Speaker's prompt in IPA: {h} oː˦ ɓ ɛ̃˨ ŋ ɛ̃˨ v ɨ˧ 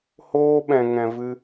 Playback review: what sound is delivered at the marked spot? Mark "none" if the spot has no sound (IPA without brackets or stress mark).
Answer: h